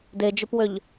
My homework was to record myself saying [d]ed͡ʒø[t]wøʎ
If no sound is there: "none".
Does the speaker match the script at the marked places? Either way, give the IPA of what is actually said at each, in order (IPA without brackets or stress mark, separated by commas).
d, p